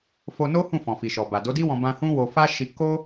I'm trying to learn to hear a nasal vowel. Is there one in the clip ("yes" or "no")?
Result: yes